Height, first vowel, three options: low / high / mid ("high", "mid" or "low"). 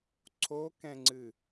mid